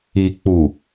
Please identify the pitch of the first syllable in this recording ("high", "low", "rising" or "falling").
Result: low